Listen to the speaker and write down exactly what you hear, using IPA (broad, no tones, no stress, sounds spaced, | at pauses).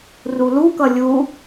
r u l u k ʌ lʲ u